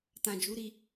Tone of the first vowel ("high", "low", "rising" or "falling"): low